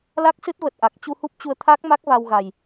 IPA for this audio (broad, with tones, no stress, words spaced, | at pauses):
la˦˥k̚sɨ˦˥t̚və˨˩t̚ ʔa˨˩k̚ t͡ɕu˧hu˦˥p̚t͡ɕu˧ə̯ t̪ʰaː˦˥k̚ma˦˥k̚ va˧wɣa˨˩j